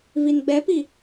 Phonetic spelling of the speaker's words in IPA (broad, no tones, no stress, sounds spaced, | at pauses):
v i n ɡ͡b ɛ p i